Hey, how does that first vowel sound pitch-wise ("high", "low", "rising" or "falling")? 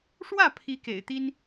falling